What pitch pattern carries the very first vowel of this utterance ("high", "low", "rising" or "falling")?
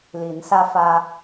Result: rising